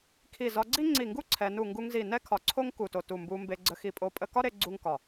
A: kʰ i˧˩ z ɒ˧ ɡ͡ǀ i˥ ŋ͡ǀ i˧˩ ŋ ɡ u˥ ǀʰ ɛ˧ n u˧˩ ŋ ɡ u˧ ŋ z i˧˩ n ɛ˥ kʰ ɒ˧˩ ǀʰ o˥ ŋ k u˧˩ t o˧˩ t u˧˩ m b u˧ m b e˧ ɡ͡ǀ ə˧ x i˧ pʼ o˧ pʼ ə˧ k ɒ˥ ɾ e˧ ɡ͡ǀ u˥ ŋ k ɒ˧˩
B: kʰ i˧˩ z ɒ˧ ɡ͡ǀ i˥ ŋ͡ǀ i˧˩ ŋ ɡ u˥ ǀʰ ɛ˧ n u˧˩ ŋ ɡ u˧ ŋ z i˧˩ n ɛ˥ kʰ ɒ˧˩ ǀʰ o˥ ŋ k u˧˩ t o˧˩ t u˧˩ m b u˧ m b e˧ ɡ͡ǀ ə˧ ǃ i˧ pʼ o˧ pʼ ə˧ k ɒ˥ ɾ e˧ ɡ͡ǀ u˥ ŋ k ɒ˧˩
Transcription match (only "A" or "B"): A